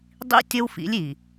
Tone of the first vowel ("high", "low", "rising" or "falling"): high